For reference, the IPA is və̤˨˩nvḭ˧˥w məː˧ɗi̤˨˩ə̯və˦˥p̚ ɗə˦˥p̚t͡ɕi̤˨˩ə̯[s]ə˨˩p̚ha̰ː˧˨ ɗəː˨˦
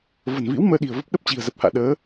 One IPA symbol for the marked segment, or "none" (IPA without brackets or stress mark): z